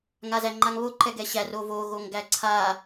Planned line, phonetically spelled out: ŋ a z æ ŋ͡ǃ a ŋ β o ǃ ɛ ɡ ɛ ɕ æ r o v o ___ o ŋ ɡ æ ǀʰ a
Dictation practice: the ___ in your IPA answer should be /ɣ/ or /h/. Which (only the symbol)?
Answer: ɣ